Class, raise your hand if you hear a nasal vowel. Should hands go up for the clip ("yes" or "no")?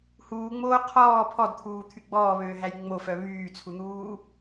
no